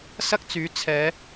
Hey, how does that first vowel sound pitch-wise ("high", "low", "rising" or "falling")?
high